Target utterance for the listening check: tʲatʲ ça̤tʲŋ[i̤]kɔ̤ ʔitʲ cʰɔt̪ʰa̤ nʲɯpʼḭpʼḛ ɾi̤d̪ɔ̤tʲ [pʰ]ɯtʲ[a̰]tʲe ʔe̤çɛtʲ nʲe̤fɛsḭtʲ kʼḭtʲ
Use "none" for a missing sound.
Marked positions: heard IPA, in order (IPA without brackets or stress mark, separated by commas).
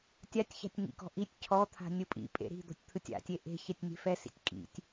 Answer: ḭ, t̪ʰ, a̰